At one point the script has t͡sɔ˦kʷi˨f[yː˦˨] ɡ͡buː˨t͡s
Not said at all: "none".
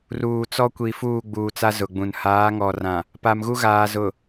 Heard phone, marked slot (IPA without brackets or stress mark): uː˦˨